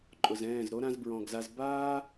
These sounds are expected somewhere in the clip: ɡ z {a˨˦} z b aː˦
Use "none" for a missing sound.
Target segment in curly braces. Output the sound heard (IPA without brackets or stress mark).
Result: a˧